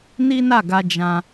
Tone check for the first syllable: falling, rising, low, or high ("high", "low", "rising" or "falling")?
high